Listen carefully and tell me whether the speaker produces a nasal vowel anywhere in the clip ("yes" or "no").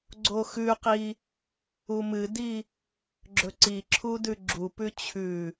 no